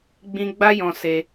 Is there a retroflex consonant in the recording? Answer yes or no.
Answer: no